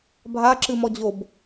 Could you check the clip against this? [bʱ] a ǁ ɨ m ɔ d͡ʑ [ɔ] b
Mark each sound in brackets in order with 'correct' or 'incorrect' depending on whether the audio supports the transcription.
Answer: correct, incorrect: o

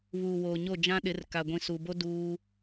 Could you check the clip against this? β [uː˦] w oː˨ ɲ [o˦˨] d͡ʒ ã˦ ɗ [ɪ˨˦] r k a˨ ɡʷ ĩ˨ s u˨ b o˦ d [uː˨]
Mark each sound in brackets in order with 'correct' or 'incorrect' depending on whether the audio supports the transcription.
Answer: incorrect: uː˨, correct, correct, incorrect: uː˦

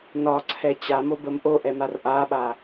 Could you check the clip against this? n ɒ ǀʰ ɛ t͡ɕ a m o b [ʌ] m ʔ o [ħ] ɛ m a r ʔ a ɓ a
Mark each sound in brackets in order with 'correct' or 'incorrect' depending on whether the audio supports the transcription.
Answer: incorrect: ə, incorrect: ʔ

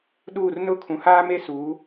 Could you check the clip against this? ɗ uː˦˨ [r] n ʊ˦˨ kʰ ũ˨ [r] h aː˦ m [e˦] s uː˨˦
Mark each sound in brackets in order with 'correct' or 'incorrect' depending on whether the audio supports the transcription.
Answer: correct, incorrect: none, correct

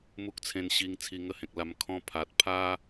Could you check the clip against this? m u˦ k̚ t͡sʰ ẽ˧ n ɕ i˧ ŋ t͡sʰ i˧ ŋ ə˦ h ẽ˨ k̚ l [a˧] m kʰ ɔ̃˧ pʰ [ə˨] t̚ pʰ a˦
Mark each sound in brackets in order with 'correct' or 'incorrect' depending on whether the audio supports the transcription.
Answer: correct, incorrect: a˨

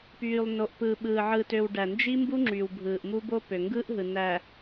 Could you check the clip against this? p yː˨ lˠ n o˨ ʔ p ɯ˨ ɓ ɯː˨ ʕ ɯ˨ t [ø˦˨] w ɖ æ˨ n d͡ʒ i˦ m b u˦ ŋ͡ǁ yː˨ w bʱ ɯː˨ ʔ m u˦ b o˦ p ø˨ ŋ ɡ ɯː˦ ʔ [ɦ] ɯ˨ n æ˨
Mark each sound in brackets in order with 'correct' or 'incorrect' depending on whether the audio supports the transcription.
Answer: incorrect: ø˨, correct

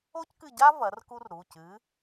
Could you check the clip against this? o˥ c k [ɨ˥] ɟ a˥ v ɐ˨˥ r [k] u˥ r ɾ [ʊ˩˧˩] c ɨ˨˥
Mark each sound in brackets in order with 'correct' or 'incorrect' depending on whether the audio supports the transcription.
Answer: incorrect: ɨ˦˨, correct, incorrect: u˩˧˩

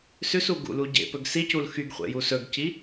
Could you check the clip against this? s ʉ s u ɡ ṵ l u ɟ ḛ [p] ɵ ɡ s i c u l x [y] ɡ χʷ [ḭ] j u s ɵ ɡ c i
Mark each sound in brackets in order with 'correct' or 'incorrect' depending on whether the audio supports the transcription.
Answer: correct, correct, incorrect: ḛ

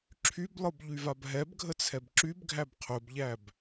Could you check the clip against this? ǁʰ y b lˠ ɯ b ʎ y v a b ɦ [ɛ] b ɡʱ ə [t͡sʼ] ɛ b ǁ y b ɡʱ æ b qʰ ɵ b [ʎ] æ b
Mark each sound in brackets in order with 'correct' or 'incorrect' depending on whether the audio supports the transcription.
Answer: correct, incorrect: t͡sʰ, correct

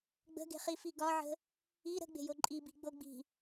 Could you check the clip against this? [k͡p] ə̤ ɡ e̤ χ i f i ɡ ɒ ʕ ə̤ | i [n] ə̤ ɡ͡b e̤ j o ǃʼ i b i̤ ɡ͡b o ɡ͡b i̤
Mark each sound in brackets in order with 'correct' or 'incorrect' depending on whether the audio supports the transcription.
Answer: incorrect: ɡ͡b, incorrect: ɾ

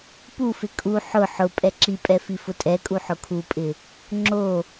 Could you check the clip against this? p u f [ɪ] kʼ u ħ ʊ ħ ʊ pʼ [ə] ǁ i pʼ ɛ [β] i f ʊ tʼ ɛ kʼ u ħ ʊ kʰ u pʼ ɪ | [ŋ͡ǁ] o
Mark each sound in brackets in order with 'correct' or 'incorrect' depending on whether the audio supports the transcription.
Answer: correct, incorrect: ɛ, incorrect: f, correct

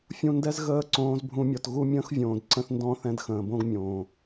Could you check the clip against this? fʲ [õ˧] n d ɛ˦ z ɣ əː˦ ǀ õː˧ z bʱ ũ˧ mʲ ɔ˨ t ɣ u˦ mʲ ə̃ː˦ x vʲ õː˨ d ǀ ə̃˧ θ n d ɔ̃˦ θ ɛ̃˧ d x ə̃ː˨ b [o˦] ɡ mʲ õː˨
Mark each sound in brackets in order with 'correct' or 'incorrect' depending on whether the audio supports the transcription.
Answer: incorrect: ũ˧, incorrect: õ˦

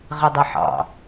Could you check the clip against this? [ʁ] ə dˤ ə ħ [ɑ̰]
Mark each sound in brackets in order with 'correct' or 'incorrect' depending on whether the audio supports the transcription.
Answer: correct, correct

